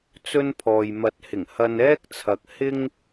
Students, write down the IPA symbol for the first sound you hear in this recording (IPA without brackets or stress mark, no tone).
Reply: t͡s